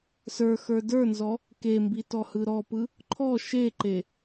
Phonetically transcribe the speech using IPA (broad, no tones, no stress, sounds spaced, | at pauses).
s ə˞ x ə˞ d ə˞ n z ɔ | k e m b i t ɔ h ɯ ɾ ɔ p ɯ | ǃʰ ɔ ʃ e ǃ e